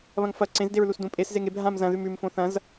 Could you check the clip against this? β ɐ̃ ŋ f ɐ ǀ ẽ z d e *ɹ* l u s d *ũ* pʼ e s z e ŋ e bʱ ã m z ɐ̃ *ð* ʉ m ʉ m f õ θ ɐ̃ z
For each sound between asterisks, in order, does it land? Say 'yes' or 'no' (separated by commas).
yes, yes, yes